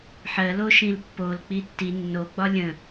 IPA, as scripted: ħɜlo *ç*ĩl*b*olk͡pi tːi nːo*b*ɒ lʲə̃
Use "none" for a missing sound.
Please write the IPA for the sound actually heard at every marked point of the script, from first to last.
ʃ, pː, ɡ͡b

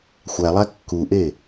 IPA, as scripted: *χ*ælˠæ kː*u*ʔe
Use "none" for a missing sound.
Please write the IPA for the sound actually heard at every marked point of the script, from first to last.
xʷ, u

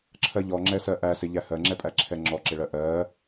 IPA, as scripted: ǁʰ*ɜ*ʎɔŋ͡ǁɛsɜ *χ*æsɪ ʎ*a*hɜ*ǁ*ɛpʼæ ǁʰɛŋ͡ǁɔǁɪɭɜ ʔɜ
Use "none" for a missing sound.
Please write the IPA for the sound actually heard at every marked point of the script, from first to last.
ɜ, ʔ, æ, ŋ͡ǁ

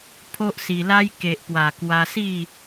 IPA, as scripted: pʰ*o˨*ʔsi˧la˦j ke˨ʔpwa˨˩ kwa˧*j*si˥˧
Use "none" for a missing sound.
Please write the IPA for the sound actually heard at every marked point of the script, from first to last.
o˦, none

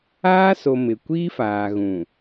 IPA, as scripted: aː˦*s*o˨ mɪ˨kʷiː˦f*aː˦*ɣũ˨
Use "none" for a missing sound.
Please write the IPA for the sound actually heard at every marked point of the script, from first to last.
s, aː˨

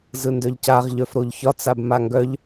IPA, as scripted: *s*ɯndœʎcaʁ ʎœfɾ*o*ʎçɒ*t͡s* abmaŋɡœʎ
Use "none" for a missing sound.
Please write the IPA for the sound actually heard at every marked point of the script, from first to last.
z, o, t͡s

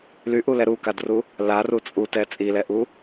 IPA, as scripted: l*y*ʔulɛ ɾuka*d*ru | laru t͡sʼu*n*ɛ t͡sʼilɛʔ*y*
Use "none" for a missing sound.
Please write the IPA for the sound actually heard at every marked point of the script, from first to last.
y, d, t, u

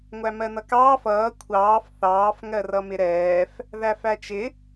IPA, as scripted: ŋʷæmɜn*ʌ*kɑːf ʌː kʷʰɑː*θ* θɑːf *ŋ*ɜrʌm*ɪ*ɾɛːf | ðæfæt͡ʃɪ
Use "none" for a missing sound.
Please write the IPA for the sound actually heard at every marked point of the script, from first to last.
ʌ, f, ŋ, ɪ

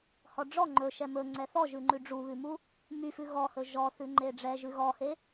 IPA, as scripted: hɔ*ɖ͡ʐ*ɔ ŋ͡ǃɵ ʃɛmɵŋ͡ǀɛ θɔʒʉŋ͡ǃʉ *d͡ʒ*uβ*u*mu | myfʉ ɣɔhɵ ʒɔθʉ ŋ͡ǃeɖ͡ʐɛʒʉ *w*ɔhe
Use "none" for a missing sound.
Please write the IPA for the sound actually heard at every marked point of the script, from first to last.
ɖ͡ʐ, ɖ͡ʐ, ʉ, ɣ

